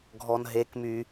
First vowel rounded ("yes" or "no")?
yes